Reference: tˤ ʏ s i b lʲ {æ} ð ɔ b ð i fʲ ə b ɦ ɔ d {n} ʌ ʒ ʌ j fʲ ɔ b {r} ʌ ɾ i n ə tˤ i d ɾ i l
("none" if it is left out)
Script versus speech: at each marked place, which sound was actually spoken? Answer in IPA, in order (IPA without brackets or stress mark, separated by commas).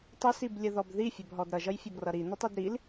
ə, ɾ, r